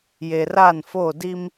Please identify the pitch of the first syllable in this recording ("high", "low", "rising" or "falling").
low